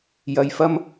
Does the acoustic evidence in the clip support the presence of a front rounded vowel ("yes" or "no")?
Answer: no